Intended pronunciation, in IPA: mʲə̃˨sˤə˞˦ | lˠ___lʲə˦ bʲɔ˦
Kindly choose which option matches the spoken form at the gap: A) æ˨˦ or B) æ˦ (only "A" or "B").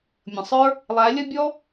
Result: A